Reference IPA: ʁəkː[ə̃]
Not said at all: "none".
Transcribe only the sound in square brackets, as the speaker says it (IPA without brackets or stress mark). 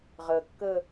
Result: ə